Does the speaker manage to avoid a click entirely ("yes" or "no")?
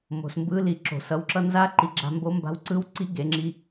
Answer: no